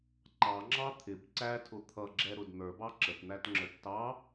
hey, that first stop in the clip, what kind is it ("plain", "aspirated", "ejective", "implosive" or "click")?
click